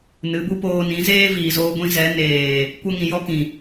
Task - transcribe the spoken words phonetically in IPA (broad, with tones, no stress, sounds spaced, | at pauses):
n ɨ˨˦ b u˦ p oː˧ n ĩ˨˦ z eː˦ v iː˨ z oː˧ ɡʷ ĩ˧ z ɛ˨˦ n eː˨ | kʷ ə˦ ŋ ĩ˨ j ɔ˦ k ĩ˨